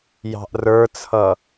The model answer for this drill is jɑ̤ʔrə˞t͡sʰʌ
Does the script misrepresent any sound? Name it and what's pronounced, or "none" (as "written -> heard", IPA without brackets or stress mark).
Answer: none